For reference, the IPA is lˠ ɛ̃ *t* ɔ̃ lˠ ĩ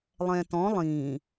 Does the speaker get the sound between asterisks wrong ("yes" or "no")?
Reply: no